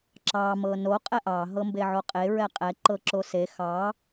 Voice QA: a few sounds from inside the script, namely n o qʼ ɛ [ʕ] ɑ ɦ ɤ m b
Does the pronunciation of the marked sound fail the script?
yes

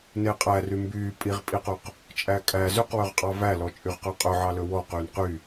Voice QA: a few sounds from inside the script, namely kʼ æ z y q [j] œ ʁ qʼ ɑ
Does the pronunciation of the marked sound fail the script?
yes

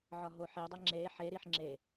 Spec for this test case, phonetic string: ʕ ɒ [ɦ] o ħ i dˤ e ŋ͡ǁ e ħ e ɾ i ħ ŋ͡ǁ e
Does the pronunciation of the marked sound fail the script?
no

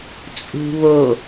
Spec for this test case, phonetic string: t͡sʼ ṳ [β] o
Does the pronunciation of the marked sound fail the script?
no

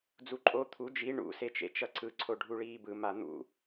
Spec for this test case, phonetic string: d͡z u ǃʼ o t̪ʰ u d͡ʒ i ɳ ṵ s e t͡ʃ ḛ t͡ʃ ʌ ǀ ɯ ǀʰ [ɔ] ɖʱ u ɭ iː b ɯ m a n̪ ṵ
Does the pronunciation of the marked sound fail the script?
yes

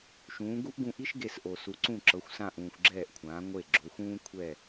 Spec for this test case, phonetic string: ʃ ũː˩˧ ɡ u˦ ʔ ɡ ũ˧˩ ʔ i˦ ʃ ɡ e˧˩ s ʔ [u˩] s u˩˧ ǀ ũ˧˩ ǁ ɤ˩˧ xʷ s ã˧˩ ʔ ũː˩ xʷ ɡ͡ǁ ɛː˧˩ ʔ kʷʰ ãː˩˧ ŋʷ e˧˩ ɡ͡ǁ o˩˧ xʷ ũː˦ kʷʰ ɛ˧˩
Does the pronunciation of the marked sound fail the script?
yes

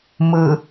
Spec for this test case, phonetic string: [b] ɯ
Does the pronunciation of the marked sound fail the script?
yes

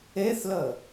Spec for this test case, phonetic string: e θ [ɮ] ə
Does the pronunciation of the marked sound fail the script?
yes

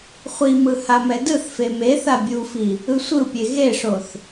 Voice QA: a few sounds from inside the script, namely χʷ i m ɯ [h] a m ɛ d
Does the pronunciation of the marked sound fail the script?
no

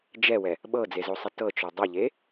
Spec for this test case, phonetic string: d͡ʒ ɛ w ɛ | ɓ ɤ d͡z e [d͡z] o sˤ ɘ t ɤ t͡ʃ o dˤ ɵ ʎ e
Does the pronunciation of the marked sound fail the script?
yes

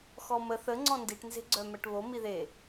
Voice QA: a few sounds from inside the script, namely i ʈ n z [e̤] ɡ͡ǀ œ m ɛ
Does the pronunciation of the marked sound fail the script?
no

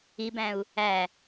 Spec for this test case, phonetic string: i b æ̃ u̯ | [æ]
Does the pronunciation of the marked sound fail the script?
no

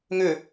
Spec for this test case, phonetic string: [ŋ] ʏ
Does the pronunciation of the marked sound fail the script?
no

